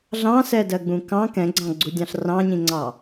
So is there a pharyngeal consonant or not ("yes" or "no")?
no